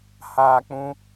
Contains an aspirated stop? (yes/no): no